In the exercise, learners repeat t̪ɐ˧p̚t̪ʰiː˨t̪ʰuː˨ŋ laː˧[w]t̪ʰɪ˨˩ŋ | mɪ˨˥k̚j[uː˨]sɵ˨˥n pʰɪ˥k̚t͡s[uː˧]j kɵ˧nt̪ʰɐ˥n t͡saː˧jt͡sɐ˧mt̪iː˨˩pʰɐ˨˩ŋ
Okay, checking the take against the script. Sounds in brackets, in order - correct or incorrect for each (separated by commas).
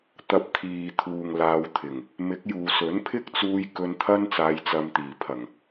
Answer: correct, correct, correct